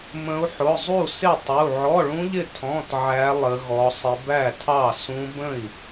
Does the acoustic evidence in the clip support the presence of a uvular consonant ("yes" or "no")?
no